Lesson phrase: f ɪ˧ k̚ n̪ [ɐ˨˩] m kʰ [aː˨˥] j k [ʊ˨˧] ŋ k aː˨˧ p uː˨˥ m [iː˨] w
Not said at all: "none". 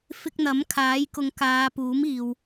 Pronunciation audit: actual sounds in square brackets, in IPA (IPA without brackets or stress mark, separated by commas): ɐ˨˥, aː˨˥, ʊ˨˧, iː˨